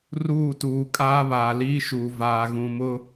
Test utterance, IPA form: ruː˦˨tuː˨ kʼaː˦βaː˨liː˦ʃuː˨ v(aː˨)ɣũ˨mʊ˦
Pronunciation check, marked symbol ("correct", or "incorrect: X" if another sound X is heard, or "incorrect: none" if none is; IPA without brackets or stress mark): correct